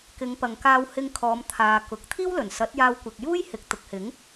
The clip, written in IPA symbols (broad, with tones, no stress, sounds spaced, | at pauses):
k ɪ˨˧ ŋ p ɐ˨ ŋ k aː˧ w h ɪ˧ ŋ kʰ ɔː˨˧ m t̪ʰ aː˨ k ʊ˨ k̚ t̪ʰ iː˥ w l ɵ˨˩ n s ɐ˨˥ t̚ j aː˧ w kʷ ɪ˨ k̚ j uː˥ j h ɪ˨ k̚ t̪ ʊ˨ k̚ h ɪ˨˥ ŋ